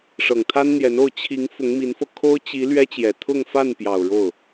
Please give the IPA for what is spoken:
ʂ ɤ˨˩ ŋ t̪ʰ a˥ n n̪ j ɛ˧˥ n o˥˩ ʊ̯ t͡ɕʰ i˧˥ ŋ f ʊ˧˥ ŋ m i˧˥ n f ɤ˧ kʰ o˥ ʊ̯ t͡ɕ i˧˥ l ɥ ɛ˥ t͡ɕ j ɛ˨˩ t̪ʰ ʊ˥˧ ŋ f a˥˩ n p j ɑ˨˩ ʊ̯ ɻ o˥˩ ʊ̯

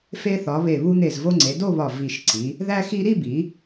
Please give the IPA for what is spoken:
f e˧ θ ɒ˩˧ β e˧˩ β u˧ n̪ e˧˩ z v o˧ ŋ͡ǀ e˩˧ d o˥˧ β ɒ˧˩ v i˧˩ ʃ ǀ i˩˧ | ð æ˧ x i˧ ɾ i˥˧ b i˩˧

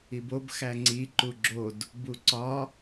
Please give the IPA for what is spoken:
i b o b x æ ŋ͡ǀ i ǃ u ɡ͡ǁ o d | b u ǀ ɒ

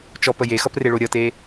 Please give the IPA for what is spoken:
t͡ʃ ɔ p ə j e x ʌ p r e ɭ o ɾʲ ʌ t e

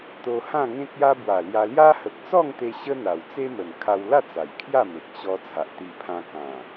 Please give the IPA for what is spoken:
t̪ o˧ h ã˥˧ ŋ ẽ˦ k̚ j a˦ b w a˨˩ l j a˧ l j a˦ h ə˨ k̚ t͡s ɔ˥˧ ŋ t̪ e˧ ɕ ə˦ n̪ a˨˩ w t͡s e˦ m ə˨˩ n kʰ a˧ w l a˥˧ t͡s a˨˩ j kʰ j a˥˧ m e˨ k̚ ɕ ɔ˧ t͡sʰ a˨ ʔ t̪ i˧ pʰ ã˧ k ã˨˩

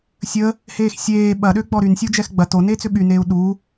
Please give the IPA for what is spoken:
sʲ ə | h eː x sʲ eː ɓ ɐ ɗ ø ɡ͡b ɔ ɾ y n sʲ u d͡ʒ ɛ x ɡ͡b ɐ t o n eː t͡s ʏ ɓ y n eː u̯ ɗ u

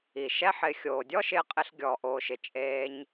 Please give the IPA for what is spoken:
i˨ ʃ ɛ˦ ħ ɪː˧ xʲ oː˨ dʲ ɔ˦ ʃ ɪː˧ qʼ ɪ˧ ɬ ɡʲ ɔ˧ ʔ oː˧ ʃ ɪ˧ t͡ʃʼ eː˧ ɲ

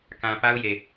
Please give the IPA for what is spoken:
k ã˨ p a˦ ʊ̯ j e˨

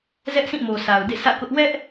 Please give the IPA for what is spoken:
z ɛ˦ ʔ s ĩ˦˨ m o˨ s a˨ ʊ̯ d ḛ˦˨ sʰ ä̰˦˨ k ʊ˦ ʔ w ɛ˦ ʔ

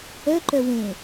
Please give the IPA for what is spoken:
œ ǃ œ w ẽ

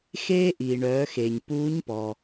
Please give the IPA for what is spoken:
x eː˧ ʔ iː˩ ɳ œː˩˧ x e˩ ɲ p uː˧˥ ɲ p ɔ˩

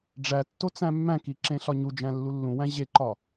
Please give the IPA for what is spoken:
ɖ͡ʐ æ tː o t͡s æ̃ mː æ̃ k i ǁ ẽ ɬ ɒ ɲ u d͡ʒ æ̃ lː u lː ũ w æ̃ ʑ e ǃ ɒ

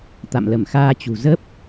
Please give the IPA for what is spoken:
t̪ a̰˧˨ m l ə˧˩ m x aː˧ t͡ɕ ṳ˨˩ z ə˦˥ p̚

